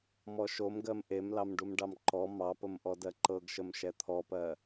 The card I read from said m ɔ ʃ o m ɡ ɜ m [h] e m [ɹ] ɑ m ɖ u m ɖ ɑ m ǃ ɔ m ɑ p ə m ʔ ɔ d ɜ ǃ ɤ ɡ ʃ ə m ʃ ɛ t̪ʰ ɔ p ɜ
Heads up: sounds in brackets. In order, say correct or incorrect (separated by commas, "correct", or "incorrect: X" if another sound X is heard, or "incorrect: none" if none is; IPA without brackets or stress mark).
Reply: incorrect: ʔ, incorrect: l